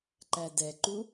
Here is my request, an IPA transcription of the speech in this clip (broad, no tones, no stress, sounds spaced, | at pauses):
ǃ æ d ɛ ǃ u